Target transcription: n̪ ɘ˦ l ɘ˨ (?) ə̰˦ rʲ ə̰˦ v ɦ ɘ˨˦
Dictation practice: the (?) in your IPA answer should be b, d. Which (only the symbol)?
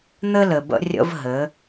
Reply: b